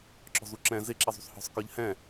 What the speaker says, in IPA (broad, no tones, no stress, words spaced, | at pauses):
ǁɔ̤zuǁɛ̃ zɪ ǁizˤṳsˤhɔ̤sˤ kə˞ʎhɛ̃